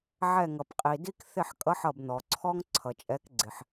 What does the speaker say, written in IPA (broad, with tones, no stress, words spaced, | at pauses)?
ʕɛ˧˩ŋʌ˩pqʼi˩ di˦k θɪ˧˩ħkʼʌ˨˦ħ ʌ˧˩bn̪ɔ˩ǀʰɔ˦ŋ ǀʰʌ˩t͡ʃʼɛ˨˦k ɡ͡ǀɪ˩ħ